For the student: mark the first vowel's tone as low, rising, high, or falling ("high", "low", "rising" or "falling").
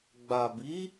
low